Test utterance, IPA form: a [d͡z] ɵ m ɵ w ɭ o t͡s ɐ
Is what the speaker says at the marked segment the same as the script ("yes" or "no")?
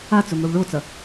no